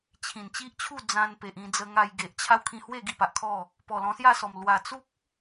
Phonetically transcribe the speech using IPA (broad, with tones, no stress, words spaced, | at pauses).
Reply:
t͡ɕʰĩ˨˩nt͡ɕi˦ʔt͡ɕʰu˥˧ d͡zã˧n pe˨ʔĩ˧d͡zə˧ ŋa˧jɡe˨ʔt͡ɕʰa˦w kʰĩ˧hwe˥˧ ɡi˥˧pa˨ʔkʰɔ˥˧ | pɔ˨˩lɔ̃˧sja˥˧sɔ˨˩m lwa˨˩t͡su˦k̚